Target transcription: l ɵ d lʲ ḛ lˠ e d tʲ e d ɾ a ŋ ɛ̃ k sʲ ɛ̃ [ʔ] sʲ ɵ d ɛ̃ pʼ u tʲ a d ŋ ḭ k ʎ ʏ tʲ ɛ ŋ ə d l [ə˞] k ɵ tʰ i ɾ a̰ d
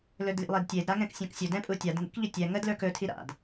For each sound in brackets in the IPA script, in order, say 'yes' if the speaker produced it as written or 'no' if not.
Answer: no, yes

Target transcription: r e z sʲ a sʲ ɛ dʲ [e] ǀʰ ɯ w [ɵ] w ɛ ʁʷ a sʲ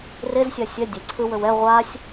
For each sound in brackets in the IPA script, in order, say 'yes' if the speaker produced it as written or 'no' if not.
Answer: yes, yes

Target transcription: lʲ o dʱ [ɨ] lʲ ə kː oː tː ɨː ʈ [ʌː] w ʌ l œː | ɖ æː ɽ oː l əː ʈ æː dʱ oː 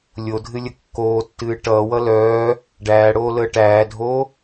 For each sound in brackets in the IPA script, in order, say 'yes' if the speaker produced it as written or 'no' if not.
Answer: yes, yes

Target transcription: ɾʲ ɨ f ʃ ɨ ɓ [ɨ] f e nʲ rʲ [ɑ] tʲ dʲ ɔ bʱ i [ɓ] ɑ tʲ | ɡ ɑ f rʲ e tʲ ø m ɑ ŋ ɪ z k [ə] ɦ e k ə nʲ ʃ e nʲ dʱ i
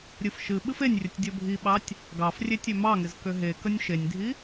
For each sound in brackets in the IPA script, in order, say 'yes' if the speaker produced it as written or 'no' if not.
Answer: yes, no, yes, no

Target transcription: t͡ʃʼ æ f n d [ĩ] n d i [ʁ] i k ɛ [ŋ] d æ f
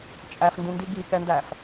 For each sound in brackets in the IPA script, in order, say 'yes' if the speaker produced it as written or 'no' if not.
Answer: yes, no, no

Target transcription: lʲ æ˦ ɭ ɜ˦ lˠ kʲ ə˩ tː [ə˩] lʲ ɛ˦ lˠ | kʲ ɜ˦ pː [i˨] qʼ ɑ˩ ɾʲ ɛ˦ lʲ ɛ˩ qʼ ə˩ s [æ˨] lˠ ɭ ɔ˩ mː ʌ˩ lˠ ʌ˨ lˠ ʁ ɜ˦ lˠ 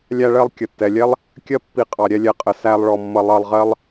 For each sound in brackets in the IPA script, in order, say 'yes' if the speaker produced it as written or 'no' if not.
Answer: no, yes, yes

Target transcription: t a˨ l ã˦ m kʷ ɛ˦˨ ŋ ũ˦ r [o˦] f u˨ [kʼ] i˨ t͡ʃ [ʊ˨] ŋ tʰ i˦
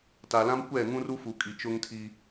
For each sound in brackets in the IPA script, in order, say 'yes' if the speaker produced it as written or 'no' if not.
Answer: no, yes, no

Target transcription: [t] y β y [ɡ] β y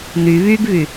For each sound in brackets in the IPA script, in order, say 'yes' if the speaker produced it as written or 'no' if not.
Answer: no, yes

